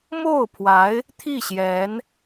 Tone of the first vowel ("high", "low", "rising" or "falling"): falling